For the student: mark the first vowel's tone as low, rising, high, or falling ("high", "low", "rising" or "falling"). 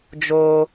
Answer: high